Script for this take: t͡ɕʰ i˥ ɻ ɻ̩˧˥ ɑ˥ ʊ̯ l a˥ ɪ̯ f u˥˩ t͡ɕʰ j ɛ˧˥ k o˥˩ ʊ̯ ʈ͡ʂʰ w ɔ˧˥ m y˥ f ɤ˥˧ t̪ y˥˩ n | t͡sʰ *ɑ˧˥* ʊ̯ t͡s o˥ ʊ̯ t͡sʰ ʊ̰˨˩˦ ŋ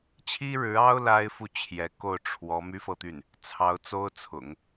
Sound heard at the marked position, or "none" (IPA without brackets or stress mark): ɑ˧˥